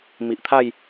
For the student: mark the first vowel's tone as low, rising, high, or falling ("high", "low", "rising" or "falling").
low